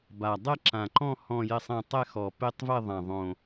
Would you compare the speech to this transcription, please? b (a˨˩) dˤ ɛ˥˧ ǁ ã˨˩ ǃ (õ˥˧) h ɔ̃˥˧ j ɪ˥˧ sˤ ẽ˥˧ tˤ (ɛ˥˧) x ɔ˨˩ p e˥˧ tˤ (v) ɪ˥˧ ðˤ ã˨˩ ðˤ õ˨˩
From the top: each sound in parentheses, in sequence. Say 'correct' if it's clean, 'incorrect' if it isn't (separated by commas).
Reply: correct, incorrect, correct, correct